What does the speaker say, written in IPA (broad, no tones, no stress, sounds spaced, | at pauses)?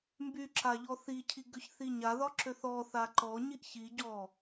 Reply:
m b y ǁ a ʎ ɔ θ i cʰ i ɡ ø ç θ i ɲ a ð ɒ ǁ ø θ ɔ θ a ǃ ɔ ɲ i ʔ ç i ɟ ɔ